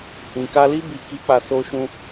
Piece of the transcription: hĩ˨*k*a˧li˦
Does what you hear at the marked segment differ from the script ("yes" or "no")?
no